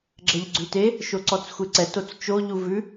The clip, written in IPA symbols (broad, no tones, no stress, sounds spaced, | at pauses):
ɡ͡ǁ ɛ ʎ ɡ͡ǀ ʉ t e | ʃ o ǀ ɔ t͡s xʷ e ǀ ɛ t o t͡s t͡ʃ o ʎ u v ʉ